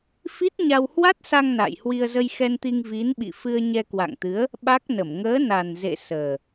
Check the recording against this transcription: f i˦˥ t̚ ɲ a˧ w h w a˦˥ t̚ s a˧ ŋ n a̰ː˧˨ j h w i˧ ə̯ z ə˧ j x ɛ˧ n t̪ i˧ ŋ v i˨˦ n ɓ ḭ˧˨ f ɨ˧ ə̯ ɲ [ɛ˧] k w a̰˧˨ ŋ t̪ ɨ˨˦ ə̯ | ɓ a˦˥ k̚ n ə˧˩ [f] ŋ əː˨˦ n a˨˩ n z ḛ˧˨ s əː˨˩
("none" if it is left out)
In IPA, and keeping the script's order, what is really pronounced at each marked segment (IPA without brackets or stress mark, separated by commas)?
ɛ˧, m